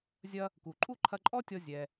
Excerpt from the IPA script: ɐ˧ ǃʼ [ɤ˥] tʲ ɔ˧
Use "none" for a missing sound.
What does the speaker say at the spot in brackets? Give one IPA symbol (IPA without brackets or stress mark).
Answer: ɔ˥